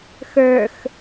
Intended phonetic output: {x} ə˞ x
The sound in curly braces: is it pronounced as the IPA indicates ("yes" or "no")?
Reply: yes